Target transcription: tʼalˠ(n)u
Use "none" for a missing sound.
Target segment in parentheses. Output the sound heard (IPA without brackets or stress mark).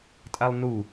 n